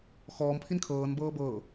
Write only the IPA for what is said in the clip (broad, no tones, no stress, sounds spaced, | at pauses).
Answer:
x ɔː m pʰ i n kʰ ɤː n b ɤː b ɤ